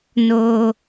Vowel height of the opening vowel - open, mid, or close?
mid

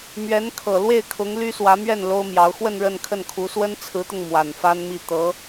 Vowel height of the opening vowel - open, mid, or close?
mid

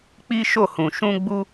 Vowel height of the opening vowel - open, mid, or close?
close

